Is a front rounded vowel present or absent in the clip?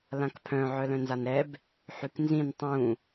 present